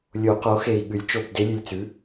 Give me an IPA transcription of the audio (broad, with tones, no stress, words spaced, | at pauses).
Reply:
lʲo˨˩˦qo˩˥xe˨˩i̯ɠʉ˨˩˦lʲ t͡ʃo˦˨b de˧˥lʲʉ˨˩lʲt͡sʉ˩˥